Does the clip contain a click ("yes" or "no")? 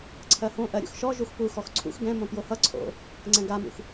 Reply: yes